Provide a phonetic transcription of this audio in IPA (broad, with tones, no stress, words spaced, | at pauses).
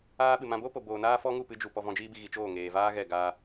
aː˧ɓɨ˨ mã˧ boː˦po˨ boː˨naː˦ fɔ˦ŋu˦˨pɨ˧d͡ʒu˨ pɔ˧vɔ̃˧d͡ʒiː˦bi˧ ɣi˨t͡ʃoː˦˨ ŋeː˨vaː˦ɣɛ˦˨ɡaː˧